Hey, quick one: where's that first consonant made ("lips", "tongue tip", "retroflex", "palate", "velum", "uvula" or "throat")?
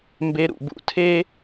lips